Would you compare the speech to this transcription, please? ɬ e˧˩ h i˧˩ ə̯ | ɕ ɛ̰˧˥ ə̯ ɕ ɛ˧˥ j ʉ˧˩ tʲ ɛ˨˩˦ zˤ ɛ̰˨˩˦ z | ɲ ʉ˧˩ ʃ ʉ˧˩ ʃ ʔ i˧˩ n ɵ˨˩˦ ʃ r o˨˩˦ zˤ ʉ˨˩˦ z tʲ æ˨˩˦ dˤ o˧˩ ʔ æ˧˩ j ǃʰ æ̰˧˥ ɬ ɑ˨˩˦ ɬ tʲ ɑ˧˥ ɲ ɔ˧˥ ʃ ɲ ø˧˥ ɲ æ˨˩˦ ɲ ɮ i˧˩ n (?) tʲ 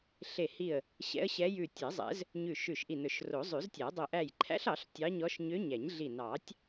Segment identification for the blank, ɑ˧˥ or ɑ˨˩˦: ɑ˨˩˦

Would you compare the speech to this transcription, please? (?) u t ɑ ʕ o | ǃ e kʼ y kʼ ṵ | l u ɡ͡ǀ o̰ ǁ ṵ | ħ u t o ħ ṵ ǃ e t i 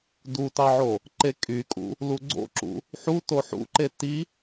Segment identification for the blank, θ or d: d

